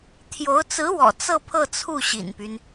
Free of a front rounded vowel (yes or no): no